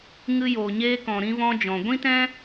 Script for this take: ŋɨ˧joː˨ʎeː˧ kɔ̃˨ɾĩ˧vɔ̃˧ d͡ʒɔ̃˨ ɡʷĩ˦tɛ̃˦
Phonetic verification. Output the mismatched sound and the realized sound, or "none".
ʎ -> ɲ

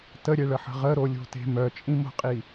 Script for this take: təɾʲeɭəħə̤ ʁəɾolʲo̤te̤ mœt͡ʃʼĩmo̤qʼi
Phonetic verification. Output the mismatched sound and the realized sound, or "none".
none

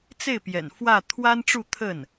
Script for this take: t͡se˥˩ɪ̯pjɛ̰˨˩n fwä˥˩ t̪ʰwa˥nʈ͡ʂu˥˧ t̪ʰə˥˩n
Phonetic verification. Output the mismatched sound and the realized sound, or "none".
none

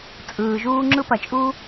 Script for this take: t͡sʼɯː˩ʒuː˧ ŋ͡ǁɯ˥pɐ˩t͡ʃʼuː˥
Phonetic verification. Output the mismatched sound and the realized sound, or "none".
none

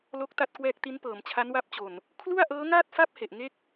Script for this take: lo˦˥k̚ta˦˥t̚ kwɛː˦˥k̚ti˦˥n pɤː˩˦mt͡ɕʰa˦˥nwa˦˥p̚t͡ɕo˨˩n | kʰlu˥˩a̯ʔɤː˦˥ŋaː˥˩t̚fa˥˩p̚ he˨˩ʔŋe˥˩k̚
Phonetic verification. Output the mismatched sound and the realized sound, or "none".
none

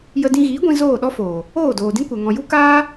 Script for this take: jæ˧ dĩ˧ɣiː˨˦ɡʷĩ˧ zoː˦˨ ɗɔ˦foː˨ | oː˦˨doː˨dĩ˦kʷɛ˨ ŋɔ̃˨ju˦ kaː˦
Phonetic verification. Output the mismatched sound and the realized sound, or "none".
æ˧ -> ə˧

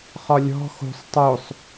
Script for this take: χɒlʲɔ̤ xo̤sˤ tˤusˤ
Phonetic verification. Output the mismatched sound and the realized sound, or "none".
u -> o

